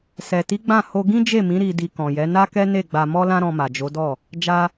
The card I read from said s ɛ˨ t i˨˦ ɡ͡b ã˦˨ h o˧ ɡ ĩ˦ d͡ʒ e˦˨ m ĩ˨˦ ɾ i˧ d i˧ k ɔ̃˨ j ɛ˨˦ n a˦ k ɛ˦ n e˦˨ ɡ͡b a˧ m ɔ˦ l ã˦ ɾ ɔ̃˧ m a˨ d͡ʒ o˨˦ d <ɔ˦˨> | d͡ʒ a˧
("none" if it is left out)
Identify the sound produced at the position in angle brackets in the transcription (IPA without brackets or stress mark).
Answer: ɔ˦˨